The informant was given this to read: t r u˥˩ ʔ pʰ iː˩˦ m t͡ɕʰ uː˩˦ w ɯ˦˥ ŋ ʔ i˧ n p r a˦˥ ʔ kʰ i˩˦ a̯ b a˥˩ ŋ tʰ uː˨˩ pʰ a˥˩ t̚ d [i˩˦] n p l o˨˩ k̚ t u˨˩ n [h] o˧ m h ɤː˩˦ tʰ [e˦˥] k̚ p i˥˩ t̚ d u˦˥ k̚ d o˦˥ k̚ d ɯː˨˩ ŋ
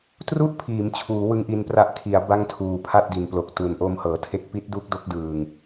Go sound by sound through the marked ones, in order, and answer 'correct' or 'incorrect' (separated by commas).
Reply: incorrect, incorrect, correct